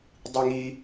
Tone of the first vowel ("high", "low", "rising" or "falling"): low